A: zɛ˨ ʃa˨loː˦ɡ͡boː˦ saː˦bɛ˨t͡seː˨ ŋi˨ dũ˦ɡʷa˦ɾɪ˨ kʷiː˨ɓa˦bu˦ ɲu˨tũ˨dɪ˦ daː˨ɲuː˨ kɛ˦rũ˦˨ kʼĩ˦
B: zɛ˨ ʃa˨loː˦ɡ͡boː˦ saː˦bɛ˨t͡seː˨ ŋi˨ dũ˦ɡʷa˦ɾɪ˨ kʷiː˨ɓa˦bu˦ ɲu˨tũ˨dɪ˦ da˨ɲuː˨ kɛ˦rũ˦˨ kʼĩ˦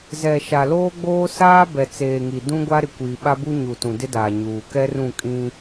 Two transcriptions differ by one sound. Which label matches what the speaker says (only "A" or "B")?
A